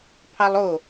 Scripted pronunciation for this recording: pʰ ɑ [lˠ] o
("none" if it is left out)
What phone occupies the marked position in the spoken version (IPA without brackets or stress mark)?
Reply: lˠ